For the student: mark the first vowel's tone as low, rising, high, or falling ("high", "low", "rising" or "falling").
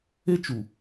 high